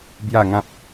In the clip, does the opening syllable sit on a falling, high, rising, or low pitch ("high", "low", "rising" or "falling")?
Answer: falling